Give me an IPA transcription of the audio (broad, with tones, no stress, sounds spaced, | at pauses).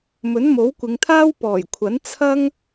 m ɵ˨˥ n m o˨˥ w kʷ ɪ˨˧ ŋ t̪ʰ aː˥ w p ɔː˨˩ j kʷʰ ɐ˨˥ n t͡sʰ ɐ˥ ŋ